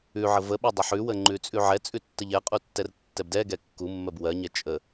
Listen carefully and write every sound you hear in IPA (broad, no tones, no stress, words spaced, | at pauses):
ʉʕə vəɓɜ dˤəħʉwə ŋ͡ǃʉt͡sʼʉʕɛt͡sʼʉ tːəʎɛqʼu tːɛrtːɛbdɛɡɛ kːumːɜb wɜɲɛ t͡ʃʼə